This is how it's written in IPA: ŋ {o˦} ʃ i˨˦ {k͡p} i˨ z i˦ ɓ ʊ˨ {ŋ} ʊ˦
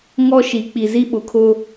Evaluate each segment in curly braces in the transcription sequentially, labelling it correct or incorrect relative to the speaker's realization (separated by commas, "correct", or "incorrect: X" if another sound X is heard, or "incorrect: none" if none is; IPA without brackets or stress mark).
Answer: incorrect: ɔ˦, correct, incorrect: kʰ